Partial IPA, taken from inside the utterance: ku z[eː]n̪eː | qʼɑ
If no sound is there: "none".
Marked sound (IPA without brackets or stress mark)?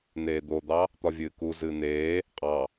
ɨː